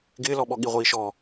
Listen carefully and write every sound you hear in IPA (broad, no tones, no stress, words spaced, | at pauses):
ɡɪːlɔɓɔ ɠiʁʷiːʃɔ